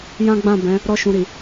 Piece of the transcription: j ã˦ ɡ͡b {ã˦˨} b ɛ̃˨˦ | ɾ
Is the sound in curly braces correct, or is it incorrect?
correct